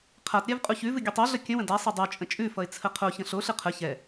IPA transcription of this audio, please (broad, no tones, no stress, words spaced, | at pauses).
qʰatɾʲav qʼuçʉvɨ ɡʲɨtˤoɮə kʲə̃wə̃ dasˤʌ dˤo t͡ʃʼə̃t͡ʃʼʉfʌɪ̯ t͡sʰəqʰoçə̃ ɬoɬɨ qʰə çɛ